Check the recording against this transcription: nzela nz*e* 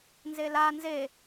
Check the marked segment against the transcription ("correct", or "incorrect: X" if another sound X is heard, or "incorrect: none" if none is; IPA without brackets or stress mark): correct